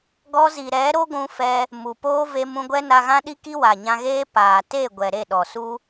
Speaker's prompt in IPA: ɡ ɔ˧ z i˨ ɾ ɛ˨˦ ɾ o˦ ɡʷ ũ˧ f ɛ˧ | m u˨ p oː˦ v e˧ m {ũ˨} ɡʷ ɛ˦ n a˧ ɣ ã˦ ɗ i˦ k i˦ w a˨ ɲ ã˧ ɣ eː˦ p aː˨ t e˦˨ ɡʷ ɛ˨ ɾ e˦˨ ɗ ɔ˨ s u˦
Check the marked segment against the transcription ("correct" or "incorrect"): incorrect